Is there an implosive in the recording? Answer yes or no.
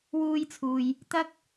no